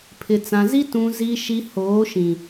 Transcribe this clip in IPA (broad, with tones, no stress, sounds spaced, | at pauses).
pʰ ɪ˨ t͡s ã˨ z i˦ t ũ˨ z i˨ ʃ i˨ h oː˨˦ ʃ ĩ˨